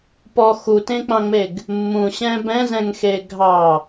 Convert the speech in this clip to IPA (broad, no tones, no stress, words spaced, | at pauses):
pɔ xutẽk͡pɑ̃ŋ͡meɡ | mːũɕɛ̃ bɛ̃zɛ̃ŋxe ɡʱɑ